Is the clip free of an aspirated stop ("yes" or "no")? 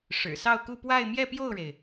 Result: yes